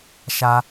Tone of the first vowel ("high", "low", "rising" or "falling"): high